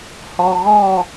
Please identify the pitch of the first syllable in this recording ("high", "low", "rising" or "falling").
low